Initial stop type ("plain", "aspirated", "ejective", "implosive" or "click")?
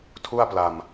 aspirated